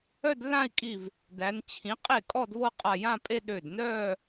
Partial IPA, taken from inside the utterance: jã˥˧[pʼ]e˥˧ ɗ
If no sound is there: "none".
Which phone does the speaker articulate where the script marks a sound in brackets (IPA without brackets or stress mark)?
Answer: pʼ